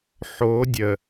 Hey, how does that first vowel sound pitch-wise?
rising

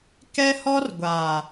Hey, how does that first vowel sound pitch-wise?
high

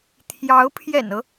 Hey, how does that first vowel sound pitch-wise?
rising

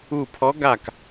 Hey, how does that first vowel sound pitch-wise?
falling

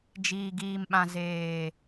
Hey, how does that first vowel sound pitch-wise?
low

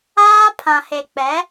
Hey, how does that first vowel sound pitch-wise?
high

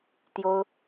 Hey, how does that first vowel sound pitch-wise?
high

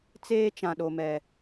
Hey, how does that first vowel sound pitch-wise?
high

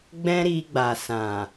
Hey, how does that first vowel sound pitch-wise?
high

